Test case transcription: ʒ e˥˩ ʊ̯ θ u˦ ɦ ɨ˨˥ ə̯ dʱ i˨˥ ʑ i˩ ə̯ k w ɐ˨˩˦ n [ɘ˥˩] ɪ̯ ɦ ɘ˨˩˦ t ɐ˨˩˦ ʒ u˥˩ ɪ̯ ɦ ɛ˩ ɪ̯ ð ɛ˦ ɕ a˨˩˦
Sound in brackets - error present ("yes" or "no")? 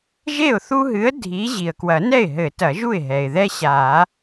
yes